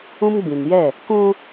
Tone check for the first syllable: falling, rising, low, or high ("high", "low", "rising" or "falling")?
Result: high